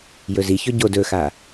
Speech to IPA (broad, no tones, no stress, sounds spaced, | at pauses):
j ɵ z i ç ɵ ɟ o d ɵ x a